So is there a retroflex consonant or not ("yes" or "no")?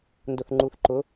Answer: no